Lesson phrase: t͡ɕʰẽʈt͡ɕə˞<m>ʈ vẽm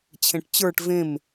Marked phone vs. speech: incorrect: none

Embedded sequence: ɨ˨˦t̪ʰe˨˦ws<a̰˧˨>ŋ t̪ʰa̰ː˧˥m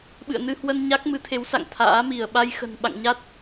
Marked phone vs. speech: correct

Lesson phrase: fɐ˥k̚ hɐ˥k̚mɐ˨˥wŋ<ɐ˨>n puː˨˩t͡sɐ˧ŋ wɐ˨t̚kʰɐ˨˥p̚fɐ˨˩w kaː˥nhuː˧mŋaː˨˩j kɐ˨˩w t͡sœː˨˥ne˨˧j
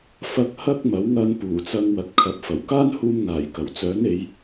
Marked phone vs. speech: incorrect: ɐ˧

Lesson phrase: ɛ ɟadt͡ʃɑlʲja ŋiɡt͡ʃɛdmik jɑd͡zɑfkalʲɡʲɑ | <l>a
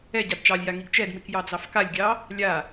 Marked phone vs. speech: incorrect: lʲ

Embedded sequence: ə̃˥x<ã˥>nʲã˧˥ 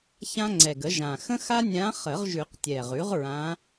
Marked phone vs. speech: incorrect: a˥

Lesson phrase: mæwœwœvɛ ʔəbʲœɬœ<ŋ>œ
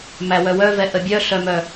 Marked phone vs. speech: incorrect: m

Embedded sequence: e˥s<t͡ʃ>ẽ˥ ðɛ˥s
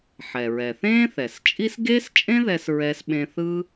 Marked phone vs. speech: incorrect: t͡ʃʼ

